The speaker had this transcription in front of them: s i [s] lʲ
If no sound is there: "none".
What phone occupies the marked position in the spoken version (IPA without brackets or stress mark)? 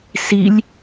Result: none